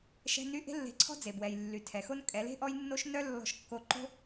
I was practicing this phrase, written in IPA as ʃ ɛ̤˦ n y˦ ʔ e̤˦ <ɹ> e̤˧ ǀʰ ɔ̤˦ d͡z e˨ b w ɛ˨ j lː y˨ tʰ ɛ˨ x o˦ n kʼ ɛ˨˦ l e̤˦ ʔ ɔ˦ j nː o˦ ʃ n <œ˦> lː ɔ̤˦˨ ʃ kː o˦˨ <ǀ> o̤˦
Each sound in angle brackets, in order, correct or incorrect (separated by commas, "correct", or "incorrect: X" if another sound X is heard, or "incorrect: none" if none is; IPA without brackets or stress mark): incorrect: lː, correct, incorrect: ǃ